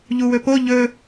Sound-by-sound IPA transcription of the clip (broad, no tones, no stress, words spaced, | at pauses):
ʎuwɵpo ʎɵ